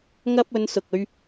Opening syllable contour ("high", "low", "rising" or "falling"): high